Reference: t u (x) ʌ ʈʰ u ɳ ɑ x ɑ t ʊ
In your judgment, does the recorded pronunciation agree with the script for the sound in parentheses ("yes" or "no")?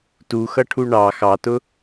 yes